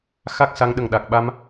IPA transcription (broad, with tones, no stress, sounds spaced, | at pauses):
x a˦˥ k̚ s a˧˥ ŋ ɗ ə˨˩ ŋ ɗ a˨˩ k̚ ɓ a˧ m